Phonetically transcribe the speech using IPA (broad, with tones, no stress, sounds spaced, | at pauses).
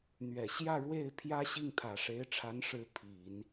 n̪ ɥ ɛ˨˩ ɕ j ä˥˧ ɻ w e˥˩ ɪ̯ pʰ j ä˥ ɕ i˥˩ ŋ t̪ʰ ä˨˩ ʂ e˧˥ ɪ̯ ʈ͡ʂʰ a˧˥ n ʂ ɻ̩˧˥ pʰ i˨˩˦ n